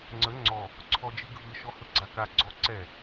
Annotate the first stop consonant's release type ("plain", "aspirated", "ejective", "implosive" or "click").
click